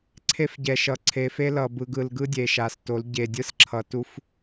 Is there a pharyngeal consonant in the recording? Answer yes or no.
no